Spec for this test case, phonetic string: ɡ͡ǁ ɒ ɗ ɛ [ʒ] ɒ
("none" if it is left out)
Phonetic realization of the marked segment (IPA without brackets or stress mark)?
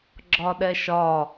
ʃ